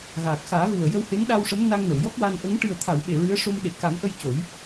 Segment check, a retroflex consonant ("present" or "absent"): present